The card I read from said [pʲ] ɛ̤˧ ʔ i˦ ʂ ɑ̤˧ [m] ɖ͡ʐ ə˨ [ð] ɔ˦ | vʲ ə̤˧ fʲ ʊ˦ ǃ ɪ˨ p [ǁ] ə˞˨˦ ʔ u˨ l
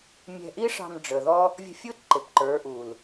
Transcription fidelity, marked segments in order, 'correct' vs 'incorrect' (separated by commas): incorrect, correct, correct, incorrect